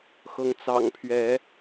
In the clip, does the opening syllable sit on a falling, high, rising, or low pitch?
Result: rising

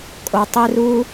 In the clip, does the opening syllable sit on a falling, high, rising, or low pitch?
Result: low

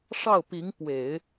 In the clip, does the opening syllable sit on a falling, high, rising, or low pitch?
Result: falling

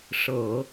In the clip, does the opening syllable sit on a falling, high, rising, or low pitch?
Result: low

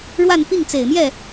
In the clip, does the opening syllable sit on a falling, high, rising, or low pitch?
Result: falling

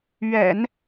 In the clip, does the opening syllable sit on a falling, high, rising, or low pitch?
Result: low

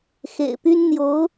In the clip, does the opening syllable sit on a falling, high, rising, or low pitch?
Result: low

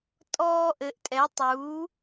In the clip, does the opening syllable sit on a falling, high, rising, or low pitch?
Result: high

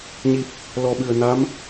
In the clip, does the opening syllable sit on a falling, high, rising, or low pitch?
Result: low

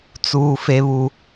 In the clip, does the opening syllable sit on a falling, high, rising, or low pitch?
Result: low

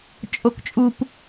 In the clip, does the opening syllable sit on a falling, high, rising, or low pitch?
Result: high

